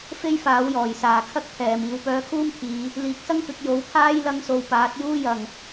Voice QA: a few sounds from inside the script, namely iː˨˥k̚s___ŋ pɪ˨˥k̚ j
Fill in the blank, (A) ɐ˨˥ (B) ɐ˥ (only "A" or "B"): B